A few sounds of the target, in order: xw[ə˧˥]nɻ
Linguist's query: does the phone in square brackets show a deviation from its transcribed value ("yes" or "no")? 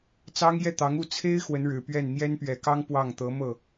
no